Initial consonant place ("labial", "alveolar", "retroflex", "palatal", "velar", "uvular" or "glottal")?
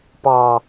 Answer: labial